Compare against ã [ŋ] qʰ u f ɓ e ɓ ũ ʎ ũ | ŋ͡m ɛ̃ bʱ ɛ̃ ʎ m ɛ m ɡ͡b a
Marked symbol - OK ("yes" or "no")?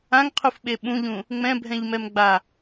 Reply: yes